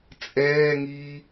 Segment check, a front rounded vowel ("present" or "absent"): absent